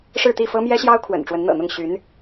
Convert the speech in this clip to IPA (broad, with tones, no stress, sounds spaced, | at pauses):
ʂ ɻ̩˥˧ t̪ i˥˩ f ɤ˥ m j ɛ˥ ɕ j ɑ˥ ʊ̯ kʰ w ə̰˨˩ n ʈ͡ʂ w ə˧˥ n n̪ ɤ̰˨˩ n̪ ʊ˥˩ ŋ ɕ y˧˥ n